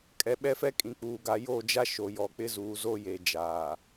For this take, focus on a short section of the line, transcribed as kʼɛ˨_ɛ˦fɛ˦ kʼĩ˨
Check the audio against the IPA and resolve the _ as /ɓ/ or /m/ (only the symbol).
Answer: ɓ